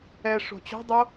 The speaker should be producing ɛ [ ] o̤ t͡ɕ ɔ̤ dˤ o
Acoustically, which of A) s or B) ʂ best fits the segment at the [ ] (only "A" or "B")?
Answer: B